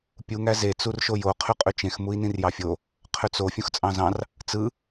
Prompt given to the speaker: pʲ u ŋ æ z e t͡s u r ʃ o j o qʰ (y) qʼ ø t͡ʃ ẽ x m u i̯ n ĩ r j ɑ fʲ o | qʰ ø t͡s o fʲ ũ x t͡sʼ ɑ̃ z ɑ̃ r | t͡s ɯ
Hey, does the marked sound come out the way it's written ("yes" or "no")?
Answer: yes